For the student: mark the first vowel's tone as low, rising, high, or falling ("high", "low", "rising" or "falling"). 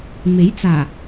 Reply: rising